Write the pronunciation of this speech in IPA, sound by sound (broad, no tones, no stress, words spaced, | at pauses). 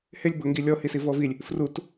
hɪlʲ bʊ ŋɡilʲɔ hisivɔvilʲ | frut